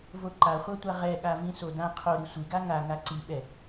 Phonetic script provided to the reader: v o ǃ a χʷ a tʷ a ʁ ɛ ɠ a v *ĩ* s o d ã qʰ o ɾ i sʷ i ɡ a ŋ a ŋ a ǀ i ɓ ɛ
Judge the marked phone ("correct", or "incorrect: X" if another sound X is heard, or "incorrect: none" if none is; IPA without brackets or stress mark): correct